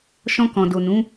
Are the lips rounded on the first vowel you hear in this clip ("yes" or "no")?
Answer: yes